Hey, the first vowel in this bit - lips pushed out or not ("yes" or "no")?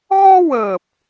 yes